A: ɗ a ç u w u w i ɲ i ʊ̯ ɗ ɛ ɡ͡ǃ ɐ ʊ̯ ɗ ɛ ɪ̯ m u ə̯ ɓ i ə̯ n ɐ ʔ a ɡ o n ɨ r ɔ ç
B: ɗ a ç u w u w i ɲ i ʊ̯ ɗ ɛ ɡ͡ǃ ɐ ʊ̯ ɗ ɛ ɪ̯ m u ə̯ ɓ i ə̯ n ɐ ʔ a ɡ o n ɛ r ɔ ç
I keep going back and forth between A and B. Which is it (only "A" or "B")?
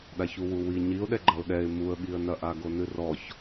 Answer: A